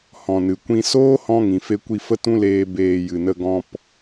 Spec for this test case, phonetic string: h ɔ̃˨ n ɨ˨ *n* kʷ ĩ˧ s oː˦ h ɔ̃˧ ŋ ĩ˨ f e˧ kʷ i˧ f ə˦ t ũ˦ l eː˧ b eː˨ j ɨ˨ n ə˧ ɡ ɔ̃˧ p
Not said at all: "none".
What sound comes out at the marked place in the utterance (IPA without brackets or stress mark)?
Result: none